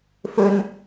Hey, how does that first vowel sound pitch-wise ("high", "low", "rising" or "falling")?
low